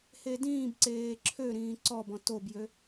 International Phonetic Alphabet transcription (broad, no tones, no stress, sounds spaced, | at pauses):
h e d ĩː b ǀ eː ǁʰ ø ɾ ĩː ǀ ɔ b ɔ̃ t o b j ø